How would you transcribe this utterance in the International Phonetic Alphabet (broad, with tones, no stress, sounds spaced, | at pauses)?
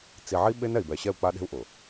t͡s i˨ ʕ i˦ ɓ e˦ n ɛ˨ i̯ b ɛ˨ ɕ ɛ˦˨ u̯ k͡p a˦ ɗ e̤˦ u̯ ʔ ʊ˨